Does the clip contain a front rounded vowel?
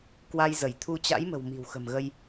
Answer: no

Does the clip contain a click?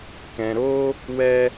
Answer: no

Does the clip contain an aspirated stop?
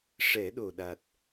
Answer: no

